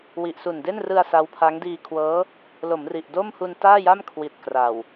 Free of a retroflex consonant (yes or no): yes